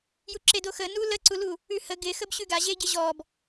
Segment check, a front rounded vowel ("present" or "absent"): absent